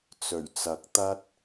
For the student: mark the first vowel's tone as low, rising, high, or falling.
low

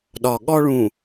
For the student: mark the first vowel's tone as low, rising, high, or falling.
low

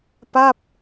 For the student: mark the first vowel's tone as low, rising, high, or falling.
falling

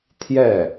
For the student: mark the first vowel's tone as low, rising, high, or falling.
falling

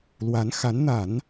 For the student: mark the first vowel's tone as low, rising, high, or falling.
rising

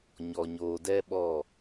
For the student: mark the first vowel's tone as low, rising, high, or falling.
low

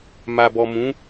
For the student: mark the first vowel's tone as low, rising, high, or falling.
low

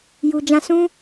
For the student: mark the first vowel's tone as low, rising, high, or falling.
low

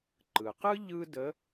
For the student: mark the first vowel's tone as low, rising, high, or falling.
low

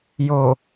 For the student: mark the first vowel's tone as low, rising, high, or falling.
low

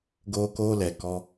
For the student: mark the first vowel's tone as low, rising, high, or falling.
high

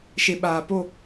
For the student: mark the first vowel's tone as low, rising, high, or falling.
low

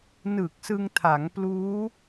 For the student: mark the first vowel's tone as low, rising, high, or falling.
low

